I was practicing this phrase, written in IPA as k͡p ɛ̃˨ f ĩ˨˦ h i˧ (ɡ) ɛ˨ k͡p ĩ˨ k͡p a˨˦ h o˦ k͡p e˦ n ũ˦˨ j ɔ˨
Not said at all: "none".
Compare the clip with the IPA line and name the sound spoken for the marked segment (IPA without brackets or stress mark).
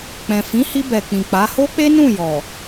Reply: b